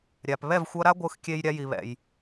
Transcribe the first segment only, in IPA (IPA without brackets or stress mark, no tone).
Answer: ɾʲ